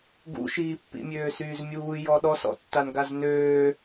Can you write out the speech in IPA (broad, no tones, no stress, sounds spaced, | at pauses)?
ɡ ṵ ʃ iː pː ḭ mʲ øː s yː z mʲ uː j ɔ ɗ ɔ s ɔ̰ tː a n ɡ a z n øː